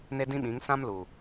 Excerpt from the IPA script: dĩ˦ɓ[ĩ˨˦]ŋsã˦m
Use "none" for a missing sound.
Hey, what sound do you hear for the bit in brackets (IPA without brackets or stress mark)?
ĩ˨˦